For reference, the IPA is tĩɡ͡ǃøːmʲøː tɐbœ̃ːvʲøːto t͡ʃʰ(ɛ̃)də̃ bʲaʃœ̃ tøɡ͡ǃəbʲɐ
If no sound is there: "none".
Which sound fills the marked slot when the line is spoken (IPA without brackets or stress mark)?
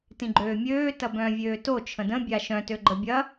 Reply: ə̃